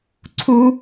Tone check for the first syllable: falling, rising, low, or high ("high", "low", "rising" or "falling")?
high